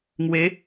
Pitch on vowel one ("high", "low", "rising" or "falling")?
rising